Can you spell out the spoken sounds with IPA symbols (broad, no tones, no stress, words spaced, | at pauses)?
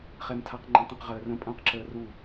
χɛmtʰaqŋ͡ǃɛ̃tˤə̃q ʁəːrə̃ pʼɐ̃ːqǁəːru